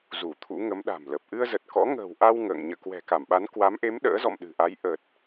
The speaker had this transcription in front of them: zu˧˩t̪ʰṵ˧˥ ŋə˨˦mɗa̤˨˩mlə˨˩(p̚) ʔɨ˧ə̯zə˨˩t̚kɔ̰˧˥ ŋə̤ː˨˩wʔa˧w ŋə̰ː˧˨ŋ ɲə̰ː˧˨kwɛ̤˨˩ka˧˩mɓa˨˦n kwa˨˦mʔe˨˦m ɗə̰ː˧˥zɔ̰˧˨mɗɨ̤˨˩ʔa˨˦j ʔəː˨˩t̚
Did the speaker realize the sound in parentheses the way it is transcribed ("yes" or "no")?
yes